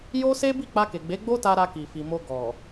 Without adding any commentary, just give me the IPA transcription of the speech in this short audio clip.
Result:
j o˦ s e˦ b i˦˨ k͡p a˧ k e˨ ɡ͡b e˨˦ ɡ͡b o˦ t a˧ ɾ a˧ k i˨ f i˨ m o˧ ɡ ɔ˨

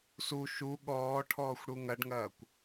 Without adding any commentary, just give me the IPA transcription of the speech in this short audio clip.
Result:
s u ʃ u ɠ ɔː ʈʰ ɔː xʷ ɽ u ŋ ɐ ɖ ŋ ɐː kʷ

